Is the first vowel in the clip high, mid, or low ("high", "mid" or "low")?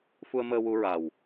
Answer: high